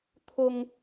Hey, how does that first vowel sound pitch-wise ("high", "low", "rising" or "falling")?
high